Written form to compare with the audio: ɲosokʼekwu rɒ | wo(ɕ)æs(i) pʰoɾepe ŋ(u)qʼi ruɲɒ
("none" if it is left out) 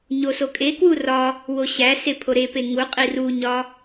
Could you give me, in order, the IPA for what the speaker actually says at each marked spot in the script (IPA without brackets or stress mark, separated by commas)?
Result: ɕ, e, u